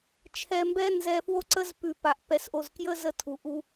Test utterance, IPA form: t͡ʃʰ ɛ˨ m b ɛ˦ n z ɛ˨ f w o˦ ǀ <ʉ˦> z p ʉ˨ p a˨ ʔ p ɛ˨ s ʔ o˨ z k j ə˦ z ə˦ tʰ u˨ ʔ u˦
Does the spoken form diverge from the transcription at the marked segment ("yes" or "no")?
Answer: yes